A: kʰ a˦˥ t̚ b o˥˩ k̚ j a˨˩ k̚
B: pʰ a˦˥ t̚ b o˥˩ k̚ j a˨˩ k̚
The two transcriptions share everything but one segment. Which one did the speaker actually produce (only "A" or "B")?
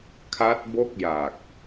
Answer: A